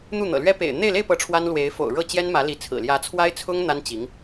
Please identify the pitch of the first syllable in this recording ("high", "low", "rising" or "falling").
falling